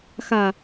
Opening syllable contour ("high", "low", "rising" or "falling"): low